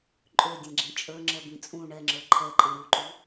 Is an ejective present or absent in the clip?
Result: present